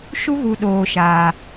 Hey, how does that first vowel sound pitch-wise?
high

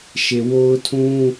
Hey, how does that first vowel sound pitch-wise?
low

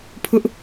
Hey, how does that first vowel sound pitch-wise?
high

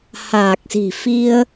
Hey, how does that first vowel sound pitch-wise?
low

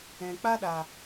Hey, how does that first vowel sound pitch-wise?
low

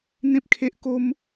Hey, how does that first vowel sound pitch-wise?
high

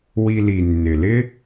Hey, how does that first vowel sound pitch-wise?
low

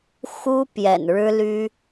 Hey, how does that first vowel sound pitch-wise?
high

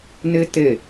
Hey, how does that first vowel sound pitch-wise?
high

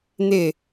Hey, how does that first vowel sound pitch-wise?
falling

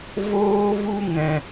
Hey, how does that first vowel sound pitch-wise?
high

